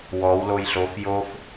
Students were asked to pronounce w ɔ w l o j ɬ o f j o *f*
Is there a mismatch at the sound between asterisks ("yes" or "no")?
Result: no